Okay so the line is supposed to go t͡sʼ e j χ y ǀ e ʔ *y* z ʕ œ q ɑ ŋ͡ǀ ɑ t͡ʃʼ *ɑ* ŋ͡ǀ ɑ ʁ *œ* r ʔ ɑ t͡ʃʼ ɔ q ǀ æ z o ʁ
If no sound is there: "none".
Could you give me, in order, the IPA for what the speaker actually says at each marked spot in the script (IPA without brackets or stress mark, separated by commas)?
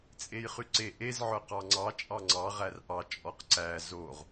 e, ɑ, æ